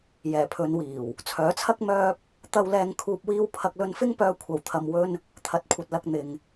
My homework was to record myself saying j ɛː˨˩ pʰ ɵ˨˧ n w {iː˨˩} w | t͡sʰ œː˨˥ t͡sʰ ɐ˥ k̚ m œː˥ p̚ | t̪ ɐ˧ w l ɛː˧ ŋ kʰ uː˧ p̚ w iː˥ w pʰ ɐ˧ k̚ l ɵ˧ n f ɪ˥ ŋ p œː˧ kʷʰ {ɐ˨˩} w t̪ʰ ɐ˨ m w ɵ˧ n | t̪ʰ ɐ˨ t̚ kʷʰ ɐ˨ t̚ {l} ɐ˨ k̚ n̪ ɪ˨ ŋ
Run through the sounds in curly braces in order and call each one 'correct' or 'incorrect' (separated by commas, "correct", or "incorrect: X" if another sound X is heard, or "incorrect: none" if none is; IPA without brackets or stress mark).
correct, correct, correct